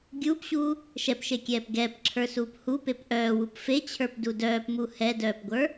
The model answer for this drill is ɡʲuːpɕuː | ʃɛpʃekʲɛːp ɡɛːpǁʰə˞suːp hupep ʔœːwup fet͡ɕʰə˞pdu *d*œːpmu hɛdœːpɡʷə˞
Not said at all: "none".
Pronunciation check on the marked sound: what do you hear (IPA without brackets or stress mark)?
d